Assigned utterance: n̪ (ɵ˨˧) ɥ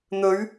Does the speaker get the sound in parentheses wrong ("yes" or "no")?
no